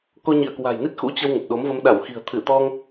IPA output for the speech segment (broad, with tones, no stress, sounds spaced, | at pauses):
k o˧ ɲ ḭ˧˨ ə̯ k w a̤˨˩ j n i˦˥ t̚ x ṵ˧˥ t͡ɕ ə˧ w ŋ ə˨˩ p̚ ɗ o˨˦ m v ə˧ m ɗ a˧˩ w x i̤˨˩ ə̯ t̪ʰ ɨ˧˩ t̪ ɔ˧ ŋ